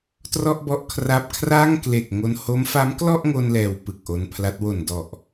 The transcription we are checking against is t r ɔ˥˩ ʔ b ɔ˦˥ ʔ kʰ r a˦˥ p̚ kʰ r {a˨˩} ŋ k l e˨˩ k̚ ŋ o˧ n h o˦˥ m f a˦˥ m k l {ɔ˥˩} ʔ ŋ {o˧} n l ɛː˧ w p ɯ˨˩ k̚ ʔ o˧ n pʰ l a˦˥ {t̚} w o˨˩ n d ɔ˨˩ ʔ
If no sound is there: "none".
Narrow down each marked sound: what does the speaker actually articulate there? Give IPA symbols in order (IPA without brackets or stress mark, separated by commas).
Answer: a˥˩, ɔ˥˩, o˧, t̚